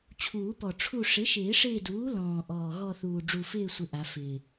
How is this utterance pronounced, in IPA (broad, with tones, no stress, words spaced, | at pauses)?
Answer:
t͡ɕʰuː˨˩˦pɔ˨˩ ʈ͡ʂʰu˦˨ ʂɪ˩˥ʃɪː˨˩˦ʂɪː˦˨duː˩˥ lɔ̃ː˨˩ʔɔː˨˩ ɣɔ˦˨θuː˨˩ ɖ͡ʐu˨˩fɪː˦˨sʷɪ˨˩ ʔa˨˩˦fɪː˨˩